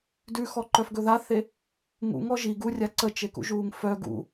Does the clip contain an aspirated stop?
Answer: no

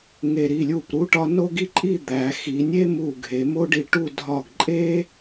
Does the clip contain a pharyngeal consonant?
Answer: no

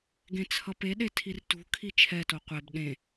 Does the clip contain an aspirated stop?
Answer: yes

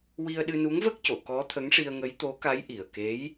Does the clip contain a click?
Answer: no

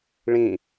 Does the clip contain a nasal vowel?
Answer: yes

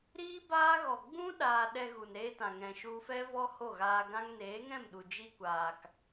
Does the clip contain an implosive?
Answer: yes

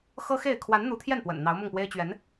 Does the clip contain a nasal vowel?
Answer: no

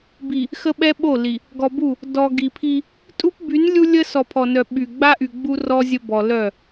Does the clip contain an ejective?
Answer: yes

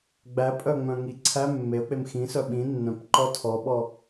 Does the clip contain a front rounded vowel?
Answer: yes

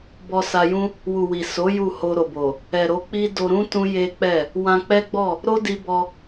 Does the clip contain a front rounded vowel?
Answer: no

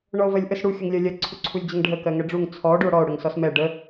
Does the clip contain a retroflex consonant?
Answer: yes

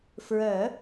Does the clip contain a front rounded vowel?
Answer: yes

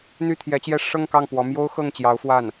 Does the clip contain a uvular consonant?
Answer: no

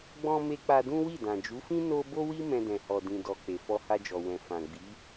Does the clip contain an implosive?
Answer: no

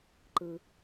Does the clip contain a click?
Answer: yes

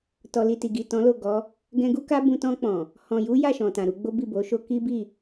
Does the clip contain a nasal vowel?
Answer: yes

